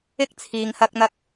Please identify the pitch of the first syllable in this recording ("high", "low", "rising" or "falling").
high